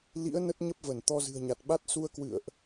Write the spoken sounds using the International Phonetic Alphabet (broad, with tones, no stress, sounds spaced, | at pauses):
l ḭ˧˥ ə̯ n ə˦˥ t̚ ɲ ə˦˥ p̚ v ə˧˩ n t̪ ɔ˧ z ɨ̤˨˩ ə̯ ɲ a˨˩ t̚ ɓ a˦˥ t̚ s u˧ ə̯ k w ɨ̰˧˨ ə̯ ʔ